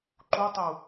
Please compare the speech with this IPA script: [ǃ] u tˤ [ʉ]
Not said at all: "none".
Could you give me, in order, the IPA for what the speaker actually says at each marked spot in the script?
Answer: ǃ, u

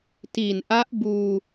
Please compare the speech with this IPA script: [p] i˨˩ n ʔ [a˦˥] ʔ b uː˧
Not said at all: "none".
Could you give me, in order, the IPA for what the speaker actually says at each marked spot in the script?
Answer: t, a˦˥

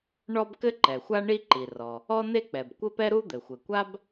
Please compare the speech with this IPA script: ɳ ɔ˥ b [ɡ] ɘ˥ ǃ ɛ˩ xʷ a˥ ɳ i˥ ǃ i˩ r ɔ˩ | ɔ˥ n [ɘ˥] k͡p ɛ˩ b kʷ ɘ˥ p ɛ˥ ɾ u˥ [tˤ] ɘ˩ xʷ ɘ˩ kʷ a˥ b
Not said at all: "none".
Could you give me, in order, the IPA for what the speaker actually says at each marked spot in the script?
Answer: k, e˥, d̪

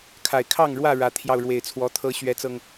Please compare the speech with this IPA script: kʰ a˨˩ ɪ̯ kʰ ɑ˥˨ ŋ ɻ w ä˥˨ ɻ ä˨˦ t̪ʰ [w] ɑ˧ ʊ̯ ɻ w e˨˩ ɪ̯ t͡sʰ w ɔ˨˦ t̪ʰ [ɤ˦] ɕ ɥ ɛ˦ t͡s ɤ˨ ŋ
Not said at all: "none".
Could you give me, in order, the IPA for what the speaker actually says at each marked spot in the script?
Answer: j, ɤ˦

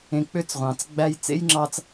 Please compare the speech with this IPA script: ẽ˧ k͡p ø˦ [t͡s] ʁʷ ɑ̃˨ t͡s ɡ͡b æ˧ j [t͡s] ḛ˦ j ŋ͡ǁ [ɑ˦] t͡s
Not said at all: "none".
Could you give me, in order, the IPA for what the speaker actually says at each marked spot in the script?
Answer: t͡s, t͡s, ɑ˧

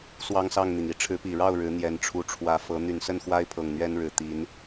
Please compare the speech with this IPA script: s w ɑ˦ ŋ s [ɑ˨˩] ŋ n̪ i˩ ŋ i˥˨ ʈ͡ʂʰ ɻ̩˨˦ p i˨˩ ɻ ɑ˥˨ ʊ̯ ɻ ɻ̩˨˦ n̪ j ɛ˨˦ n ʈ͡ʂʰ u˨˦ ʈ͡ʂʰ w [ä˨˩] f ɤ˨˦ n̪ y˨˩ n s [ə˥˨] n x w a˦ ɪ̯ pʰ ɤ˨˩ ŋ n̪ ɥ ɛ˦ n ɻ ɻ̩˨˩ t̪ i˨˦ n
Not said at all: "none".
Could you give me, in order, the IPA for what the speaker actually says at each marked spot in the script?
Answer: ɑ˥˨, ä˨˦, ə˥˨

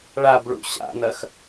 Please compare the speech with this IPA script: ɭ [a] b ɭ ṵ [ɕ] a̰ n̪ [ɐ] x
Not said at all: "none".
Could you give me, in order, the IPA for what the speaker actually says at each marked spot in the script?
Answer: a, ɕ, ɐ

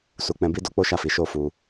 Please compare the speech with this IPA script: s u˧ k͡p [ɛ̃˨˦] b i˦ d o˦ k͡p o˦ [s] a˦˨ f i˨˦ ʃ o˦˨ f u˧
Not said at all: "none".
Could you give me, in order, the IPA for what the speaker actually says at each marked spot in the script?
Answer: ɛ̃˧, ʃ

